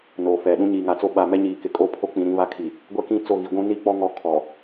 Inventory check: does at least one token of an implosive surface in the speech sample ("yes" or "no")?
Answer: yes